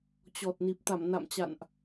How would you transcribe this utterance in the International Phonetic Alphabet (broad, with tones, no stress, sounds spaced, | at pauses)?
t͡ɕ ɔ˨˩ t̚ n i˨˩ p̚ t̪ a˧˩ m n a̰˧˨ m t͡ɕ a̰˧˨ n ʔ